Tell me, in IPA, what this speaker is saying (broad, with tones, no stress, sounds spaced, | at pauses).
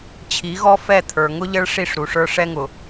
t͡ɕʰ i˨˦ ɣ ɔ˦ f ɛ˦˨ t̪ʰ ə˞˨ ŋ ʊ˦ ʎ ə˦ ɭ ʂ i˦˨ ʂ ɾ u˨ ʂ ə˞˦ ʂ ɛ˦ ŋ ʊ˨